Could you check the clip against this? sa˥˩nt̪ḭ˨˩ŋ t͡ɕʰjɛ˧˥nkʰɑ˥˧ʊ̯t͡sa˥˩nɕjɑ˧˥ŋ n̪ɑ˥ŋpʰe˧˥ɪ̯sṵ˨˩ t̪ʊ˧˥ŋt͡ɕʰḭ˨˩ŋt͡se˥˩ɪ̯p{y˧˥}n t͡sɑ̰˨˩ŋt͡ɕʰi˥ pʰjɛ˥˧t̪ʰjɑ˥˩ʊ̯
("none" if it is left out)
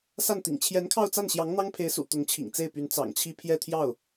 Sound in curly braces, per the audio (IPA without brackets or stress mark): y˧˥